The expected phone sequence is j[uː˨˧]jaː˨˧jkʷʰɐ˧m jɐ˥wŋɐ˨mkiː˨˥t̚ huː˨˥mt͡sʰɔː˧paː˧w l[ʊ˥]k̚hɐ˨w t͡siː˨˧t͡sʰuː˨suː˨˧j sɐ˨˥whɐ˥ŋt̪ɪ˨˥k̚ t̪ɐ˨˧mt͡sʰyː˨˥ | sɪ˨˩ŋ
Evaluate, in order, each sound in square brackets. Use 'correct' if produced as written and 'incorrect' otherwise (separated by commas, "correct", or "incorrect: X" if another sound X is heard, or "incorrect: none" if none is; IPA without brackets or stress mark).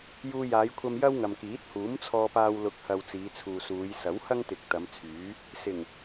incorrect: uː˧, incorrect: ʊ˨˥